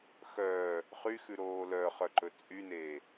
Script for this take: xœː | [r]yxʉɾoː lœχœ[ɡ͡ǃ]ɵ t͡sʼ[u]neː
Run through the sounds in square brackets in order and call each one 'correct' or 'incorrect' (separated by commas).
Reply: incorrect, incorrect, incorrect